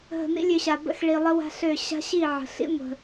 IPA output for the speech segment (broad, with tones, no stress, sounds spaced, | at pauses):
ɦ ə̤˨ n ḭ˦ lʲ ø˧ ɕ a˨ b ə̰˧ x ɭ i˨ lˠ ə˦ w a̤˦ ɬ ø˦˨ ɕ a̤˦ ɕ i˦˨ ʕ ə̤˨ ɬ ḭ˦ ŋʷ ə̤˧